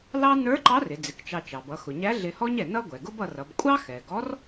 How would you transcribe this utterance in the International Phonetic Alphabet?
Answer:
l ɑ˥ n ə˞˧˥ ǃ ɑ˧˥ r ɪ˩˧ d͡z ɪ˩˧ k t͡ʃ ɑ˧ t͡ʃ ɑ˩ b ʌ˩˧ x ʊ˩ ɲ æ˧˥ ɮ ɪ˧ h ɔ˥ ɲ ɛ˩ n ʌ˥ ɡʷ ɛ˩ ɡ ʊ˥ b ʌ˧ r ʌ˩˧ b kʷʼ ɑ˥ x ɛ˩ ɡ ɔ˧˥ r

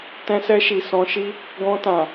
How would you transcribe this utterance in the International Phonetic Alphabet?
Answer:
t ɛ̃˧ s ɛ˧ ʃ i˨ s ɔ̃˧ ʃ i˦ | ɡ ɔ̃˧ t ã˨

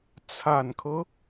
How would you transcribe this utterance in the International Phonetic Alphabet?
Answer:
t͡sʰ a˨˩ n kʰ ɤ˦

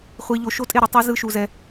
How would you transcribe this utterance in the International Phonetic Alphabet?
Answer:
χʷ i˧ ʎ o˧ ʃ o˦ tʼ e˦˨ ɾ ɯ˧ tˤ i˧ z ɯ˦ ʃ u˧ z ɛ˧

